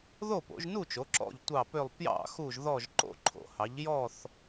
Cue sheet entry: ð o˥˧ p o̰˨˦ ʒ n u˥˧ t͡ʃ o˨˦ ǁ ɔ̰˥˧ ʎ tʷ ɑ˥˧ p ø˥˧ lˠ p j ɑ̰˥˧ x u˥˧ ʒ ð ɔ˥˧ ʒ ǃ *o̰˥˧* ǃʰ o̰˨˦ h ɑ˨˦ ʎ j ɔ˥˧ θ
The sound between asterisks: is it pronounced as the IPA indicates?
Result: yes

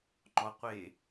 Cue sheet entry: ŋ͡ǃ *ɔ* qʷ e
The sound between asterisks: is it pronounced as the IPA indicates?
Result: yes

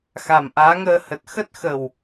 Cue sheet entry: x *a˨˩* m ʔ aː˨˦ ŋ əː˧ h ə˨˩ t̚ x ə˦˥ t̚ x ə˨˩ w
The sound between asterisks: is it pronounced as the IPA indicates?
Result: yes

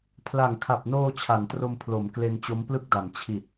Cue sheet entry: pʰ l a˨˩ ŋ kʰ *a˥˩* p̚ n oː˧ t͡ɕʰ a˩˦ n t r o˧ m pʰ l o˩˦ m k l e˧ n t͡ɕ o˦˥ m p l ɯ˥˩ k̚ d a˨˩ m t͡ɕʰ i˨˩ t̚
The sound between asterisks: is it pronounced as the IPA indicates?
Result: no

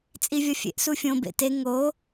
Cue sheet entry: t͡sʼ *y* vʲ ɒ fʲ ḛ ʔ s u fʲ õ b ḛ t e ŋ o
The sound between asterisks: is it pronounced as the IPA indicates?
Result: no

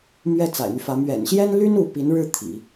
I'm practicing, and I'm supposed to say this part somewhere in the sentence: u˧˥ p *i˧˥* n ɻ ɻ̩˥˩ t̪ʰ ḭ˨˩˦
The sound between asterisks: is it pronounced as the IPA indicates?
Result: yes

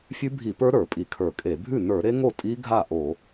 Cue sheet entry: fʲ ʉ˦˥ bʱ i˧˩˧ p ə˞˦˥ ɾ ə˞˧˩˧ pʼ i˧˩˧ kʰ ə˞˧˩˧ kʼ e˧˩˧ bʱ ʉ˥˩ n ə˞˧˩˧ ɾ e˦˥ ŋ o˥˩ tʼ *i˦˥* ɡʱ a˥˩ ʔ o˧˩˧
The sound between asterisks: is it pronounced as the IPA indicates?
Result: yes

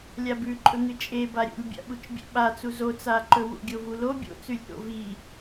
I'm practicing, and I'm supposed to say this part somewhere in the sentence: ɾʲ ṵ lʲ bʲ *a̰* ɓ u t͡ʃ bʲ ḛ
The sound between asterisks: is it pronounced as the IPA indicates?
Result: yes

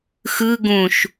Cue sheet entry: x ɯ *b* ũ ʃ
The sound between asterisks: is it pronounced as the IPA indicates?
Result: no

